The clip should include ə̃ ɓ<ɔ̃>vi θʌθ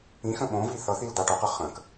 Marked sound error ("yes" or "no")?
yes